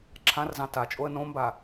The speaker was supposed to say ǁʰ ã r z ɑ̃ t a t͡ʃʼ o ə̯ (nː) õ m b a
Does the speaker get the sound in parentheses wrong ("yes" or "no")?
yes